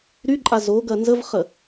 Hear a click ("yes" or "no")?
yes